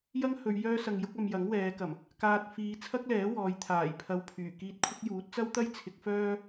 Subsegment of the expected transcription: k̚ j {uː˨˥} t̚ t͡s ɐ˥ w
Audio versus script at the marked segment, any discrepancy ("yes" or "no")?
no